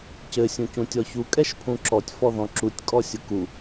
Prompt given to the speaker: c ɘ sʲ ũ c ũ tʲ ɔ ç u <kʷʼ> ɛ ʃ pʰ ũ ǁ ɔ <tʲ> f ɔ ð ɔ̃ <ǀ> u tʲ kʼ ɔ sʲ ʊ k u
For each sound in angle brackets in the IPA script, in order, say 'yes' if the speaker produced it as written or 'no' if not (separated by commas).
no, yes, no